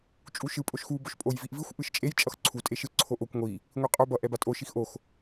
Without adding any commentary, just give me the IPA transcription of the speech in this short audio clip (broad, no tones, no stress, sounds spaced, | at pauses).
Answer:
t͡ʃʼ u ʃ ɯ pʼ o ʃ x u b o ʃ pʼ o j v i ʔ v i xʷ ʔ ɯ ʃ t͡ʃʼ e j t͡ʃʼ ʌ x ǀʰ u tʼ e ʃ ɯ ǀʰ o ʔ o kʷ ŋʷ i | ŋʷ i qʼ o b ʌ ʔ ɛ b a tʼ o ʃ i x ʔ o x